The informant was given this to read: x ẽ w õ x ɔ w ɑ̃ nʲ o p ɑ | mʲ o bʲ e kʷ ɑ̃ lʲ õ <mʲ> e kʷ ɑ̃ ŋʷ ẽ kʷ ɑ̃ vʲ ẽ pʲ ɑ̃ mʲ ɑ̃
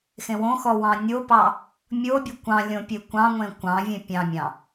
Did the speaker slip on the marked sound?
yes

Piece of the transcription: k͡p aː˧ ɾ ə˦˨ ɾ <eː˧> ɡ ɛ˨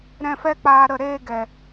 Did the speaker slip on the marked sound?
no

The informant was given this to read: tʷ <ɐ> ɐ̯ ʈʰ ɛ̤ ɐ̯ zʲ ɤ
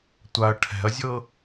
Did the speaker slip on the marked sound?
yes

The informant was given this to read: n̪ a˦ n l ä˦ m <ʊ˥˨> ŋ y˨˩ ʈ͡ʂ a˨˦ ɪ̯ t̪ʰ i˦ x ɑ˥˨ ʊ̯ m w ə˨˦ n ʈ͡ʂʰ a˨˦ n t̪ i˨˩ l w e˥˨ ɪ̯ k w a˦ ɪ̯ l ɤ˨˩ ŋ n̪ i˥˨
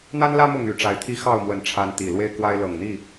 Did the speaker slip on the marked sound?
no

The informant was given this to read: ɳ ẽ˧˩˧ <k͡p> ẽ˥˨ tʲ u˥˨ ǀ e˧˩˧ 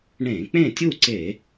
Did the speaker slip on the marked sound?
no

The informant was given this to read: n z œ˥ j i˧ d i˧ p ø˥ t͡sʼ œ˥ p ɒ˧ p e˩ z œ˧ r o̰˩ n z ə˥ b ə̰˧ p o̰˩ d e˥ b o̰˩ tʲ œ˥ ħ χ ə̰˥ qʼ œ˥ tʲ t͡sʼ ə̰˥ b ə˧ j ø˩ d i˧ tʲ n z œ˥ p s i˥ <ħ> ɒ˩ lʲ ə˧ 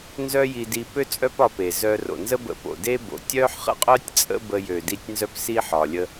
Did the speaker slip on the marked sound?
no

